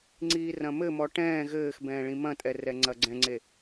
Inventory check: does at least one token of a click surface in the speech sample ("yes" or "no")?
yes